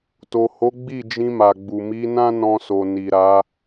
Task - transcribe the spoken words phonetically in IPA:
t o˨ h o˨˦ ɡ͡b i˦˨ d͡ʒ ĩ˧ m a˨ ɡ͡b u˨ m i˨˦ n ã˦ n ɔ̃˧ s o˨ n i˨ ɾ a˨˦

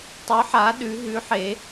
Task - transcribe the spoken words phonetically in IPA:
tˤ ʉ ħ a ɗ ʉ ɦ ʉ ħ e

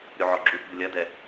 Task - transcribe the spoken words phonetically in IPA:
ɾʲ u ʕ ɔ ɡ͡ǁ u t b u lʲ ɐ d ɛ

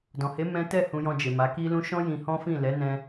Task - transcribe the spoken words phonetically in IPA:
d ɔ̃˨ h e˨˦ m ɛ̃˦ t ɛ˦˨ h ũ˧ j ɔ̃˧ d͡ʒ e˨ m a˨˦ k i˦ l ũ˦ ʃ ɔ̃˦ j ĩ˧ h ɔ̃˦ f ĩ˦˨ l ɛ˨˦ n ɛ̃˧

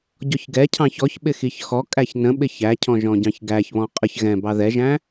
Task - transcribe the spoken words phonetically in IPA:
ɟ ɔ ç ɡ ɛ cʰ ɑ̃ ç ɔ ç ɓ ɪ x i ç x ɔ kʼ æ ç n ə̃ ɓ ɪ ç æ cʰ ɔ̃ ʒ ɔ̃ ɟ ɑ̃ ç ɡ æ ç β ɔ̃ qʼ ə ç ɣ ɛ̃ b ɑ ð ɛ ʒ æ̃

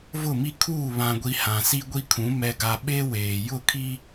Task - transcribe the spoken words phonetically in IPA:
v ʊ˦˨ m i˦ kʰ uː˦˨ β ã˨ ɡʷ i˨ h ã˨ s i˦ ɡʷ i˦ kʰ ũ˨˦ m ɛ˨ ɡ a˨ ɓ eː˦ w eː˨ j ʊ˦˨ kʰ i˦

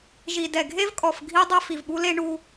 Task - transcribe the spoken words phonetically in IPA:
ʒ i˨ d ɛ˨ ɡʱ e˦ v kʼ ɔ˨ f ɡʱ i˦ dˤ ɛ˦ f i˨ v ɓ u˦ l e˦ ɳ u˦

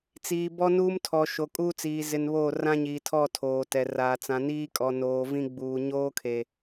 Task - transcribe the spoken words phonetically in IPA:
t͡s iː˨ b ɔ˦ n uː˦ m tʰ ɔ˨ ʃ o˨ kʼ uː˦ t͡s iː˨ z ɪ˨ n β oː˦˨ r ã˦ ɲ iː˨ tʰ ɔ˦˨ tʰ oː˨ t ɛ˨ r aː˨ t͡s ã˨ n iː˦ kʼ ɔ˨ n oː˨ v ĩ˦ ɡ͡b uː˨ ɲ oː˦ kʰ e˨

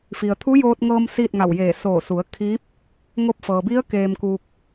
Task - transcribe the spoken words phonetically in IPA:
f i˩ ə̯ t̪ʰ u˧˥ j oː˧ t̚ ŋ ɤː˧ m s iː˥˨ t̚ ŋ a˧˩ w j eː˧˩ s oː˧˩ s u˩˧ ə̯ kʰ i˧˥ p̚ | ŋ o˧ p̚ f ɤː˩ b i˧˥ ə̯ k eː˧ m k uː˧ k̚

